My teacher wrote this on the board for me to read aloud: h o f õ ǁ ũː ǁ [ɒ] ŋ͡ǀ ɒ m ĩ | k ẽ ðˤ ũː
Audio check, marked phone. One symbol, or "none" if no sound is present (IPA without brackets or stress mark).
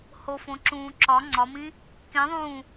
ɒ